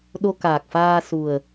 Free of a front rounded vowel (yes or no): yes